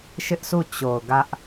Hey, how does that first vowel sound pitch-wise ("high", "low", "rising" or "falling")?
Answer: high